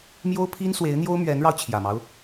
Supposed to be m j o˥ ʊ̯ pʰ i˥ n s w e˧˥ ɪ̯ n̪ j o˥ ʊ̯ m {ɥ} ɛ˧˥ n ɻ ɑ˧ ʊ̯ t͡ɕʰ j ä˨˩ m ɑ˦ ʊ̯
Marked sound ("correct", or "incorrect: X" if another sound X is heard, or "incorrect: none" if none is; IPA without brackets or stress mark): correct